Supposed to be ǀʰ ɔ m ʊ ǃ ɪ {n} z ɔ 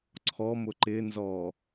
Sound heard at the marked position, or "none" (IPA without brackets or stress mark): n